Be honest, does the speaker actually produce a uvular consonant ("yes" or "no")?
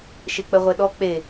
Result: yes